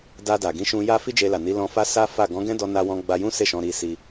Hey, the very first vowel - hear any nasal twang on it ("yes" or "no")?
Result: no